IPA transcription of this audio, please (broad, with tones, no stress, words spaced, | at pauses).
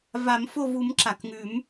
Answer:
va˨˩˦mfo˦˨vu˨˩˦m ǁa˩kŋʉ˨˩˦m